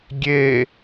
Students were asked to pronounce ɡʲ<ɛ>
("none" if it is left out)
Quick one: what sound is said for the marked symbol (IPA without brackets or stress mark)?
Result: e